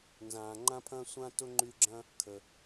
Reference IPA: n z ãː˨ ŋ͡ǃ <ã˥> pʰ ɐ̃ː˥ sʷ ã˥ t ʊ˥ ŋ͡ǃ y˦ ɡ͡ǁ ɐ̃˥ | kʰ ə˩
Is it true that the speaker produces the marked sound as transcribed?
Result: yes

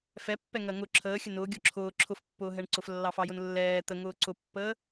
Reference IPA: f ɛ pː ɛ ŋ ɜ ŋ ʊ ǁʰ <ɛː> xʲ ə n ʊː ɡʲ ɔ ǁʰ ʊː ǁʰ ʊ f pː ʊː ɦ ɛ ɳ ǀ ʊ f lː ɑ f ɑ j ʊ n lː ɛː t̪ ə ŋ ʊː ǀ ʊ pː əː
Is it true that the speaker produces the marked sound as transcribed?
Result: no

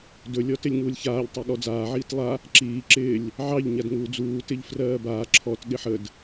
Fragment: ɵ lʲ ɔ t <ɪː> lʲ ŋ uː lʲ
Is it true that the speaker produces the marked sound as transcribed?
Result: no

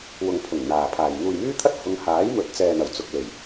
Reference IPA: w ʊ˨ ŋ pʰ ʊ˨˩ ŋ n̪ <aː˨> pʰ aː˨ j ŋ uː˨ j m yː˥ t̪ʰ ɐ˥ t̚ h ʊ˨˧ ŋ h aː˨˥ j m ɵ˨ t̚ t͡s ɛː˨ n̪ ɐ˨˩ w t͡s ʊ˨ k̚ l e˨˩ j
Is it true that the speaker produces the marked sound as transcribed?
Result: yes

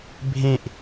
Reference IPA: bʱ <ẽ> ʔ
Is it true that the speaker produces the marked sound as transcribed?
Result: yes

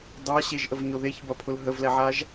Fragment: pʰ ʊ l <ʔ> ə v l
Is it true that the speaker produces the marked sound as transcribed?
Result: no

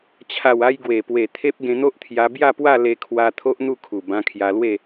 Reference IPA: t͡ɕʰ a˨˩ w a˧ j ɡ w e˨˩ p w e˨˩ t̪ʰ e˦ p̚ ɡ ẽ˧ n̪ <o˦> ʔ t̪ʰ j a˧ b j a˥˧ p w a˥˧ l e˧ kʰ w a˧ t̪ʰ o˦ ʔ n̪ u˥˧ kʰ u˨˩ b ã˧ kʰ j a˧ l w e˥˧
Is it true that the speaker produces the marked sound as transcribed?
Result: yes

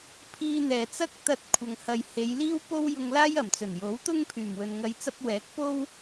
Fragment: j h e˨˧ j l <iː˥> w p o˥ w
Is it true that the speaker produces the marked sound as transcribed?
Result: yes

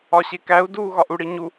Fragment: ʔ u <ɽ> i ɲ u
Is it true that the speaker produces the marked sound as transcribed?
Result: yes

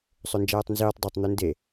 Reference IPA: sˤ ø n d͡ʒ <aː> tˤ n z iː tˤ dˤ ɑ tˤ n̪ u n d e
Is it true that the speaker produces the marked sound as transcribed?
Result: no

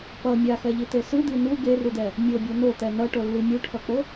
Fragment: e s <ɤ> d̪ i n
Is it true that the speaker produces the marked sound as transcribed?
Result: no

